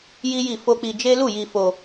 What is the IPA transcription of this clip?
j i˦ j i˦˨ f o˧ k͡p i˧ d͡ʒ e˦ l u˦˨ j i˧ f o˧

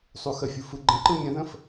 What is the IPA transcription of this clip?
sˤ u x ə fʲ u f ɯ ɡ͡ǃ ə̃ ǃ ɯ mʲ ə̃ ð ə̃ f

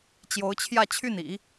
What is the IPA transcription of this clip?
t͡ɕ j o˧˥ ʊ̯ t͡ɕʰ j ä˥˧ t͡ɕʰ y˥˩ n ḭ˨˩˦

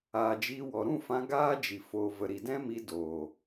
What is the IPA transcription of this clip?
aː˨ d͡ʒ iː˧ w ɔ˨ ɾ ũ˦˨ f ã˧ ɡ aː˦ d͡ʒ i˨ f oː˨ v ə˨ ɾ i˨ d ɛ̃˦ m i˧ d oː˨

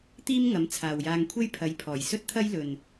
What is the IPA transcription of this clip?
t̪ iː˥ m ŋ ɐ˨˥ m t͡sʰ aː˨ w j aː˧ ŋ kʷʰ e˥ j pʰ ɐ˨˧ j pʰ ɔː˨˩ j s ɵ˥ t̚ t̪ʰ ɐ˥ j l ɵ˨ n

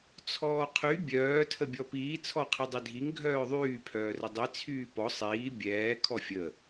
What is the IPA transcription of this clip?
t͡sʰ ɔː qʰ y bʲ œː tʰ ə bʲ ɔ p iː t͡sʰ ɔ qʰ i dˤ i dʱ i ŋ ɡʱ œː ðˤ yː pʰ œː r ə dˤ i t͡sʰ yː p ɔ sˤ iː bʲ ɛː kʰ ɔ fʲ ə

